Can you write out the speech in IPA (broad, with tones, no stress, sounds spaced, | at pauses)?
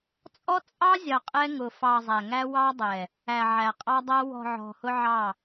t͡sʼ ɔ˦ t͡sʼ ɑ˦ zʲ ɑ˨ qʼ ɛ˦ ŋ ʊ˨ f ɑ˨ zˤ æ˨ ŋ æ˦ w ɑ˦ dˤ ɛ˨ | æ˨ ʕ æ˨ qʼ ɑ˦ dˤ æ˦ w ɔ̤˨ ʕ ɔ̤˨ h ʊ˦ ʕ ɑ˦˨